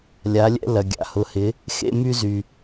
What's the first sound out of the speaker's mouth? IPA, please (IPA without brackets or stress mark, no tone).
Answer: lʲ